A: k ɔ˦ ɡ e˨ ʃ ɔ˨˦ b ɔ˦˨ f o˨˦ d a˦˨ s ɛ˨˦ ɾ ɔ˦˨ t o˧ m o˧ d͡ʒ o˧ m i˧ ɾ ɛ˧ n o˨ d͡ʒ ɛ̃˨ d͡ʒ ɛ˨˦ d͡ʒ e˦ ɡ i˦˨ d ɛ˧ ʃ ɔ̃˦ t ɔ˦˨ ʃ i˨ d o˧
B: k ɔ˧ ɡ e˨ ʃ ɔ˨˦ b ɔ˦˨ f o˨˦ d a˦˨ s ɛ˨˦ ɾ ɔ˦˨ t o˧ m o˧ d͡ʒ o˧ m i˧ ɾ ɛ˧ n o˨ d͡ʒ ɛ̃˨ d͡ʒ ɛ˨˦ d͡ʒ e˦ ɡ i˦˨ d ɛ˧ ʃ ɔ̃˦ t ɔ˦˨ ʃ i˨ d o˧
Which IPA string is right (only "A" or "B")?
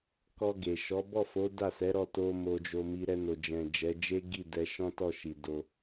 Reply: B